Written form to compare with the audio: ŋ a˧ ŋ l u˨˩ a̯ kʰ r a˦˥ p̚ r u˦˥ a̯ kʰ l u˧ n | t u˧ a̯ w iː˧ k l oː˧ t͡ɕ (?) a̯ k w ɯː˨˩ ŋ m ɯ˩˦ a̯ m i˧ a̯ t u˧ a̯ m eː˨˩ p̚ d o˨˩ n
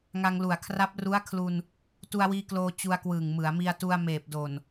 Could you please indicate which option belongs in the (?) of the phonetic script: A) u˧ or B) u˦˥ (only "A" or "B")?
A